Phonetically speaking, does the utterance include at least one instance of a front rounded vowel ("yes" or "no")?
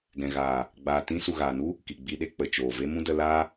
no